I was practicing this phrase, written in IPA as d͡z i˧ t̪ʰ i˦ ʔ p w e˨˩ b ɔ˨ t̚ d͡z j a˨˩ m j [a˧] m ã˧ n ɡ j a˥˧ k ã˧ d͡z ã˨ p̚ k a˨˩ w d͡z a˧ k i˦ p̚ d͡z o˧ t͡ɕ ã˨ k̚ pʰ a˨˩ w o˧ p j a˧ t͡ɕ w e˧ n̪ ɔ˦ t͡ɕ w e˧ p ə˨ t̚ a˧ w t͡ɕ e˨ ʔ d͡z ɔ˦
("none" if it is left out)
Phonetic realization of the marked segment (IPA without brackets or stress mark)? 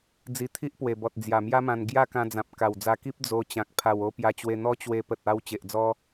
a˦